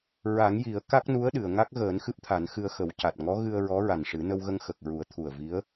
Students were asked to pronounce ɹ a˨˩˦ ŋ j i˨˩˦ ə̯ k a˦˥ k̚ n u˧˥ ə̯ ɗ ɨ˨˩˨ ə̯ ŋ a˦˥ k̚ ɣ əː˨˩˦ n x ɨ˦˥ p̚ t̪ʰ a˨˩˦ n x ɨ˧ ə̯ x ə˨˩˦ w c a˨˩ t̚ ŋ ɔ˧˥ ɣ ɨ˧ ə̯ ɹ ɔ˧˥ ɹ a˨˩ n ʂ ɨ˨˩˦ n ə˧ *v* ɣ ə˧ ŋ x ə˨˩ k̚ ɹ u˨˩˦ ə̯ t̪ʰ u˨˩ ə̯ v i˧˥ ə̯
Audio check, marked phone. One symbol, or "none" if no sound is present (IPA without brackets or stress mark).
w